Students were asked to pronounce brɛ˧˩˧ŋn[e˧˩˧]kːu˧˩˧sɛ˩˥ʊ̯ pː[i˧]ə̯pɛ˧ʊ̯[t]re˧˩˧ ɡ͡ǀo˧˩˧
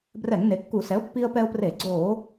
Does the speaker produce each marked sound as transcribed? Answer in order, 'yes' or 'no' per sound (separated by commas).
no, yes, no